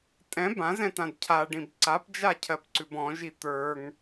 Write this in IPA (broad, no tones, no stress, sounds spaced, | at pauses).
tʼ ɛ̃ b ã z ɛ̃ t ã d cʰ a ɖ ĩ b ǀ a p d͡ʒ a cʰ ɜ p ǀ ʉ b ɔ̃ ʒ i t̪ ə˞ ŋ